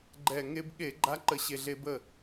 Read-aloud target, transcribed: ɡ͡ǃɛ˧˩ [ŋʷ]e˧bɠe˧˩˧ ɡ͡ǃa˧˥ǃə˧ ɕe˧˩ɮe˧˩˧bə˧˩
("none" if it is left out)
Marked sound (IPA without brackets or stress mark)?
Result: ŋ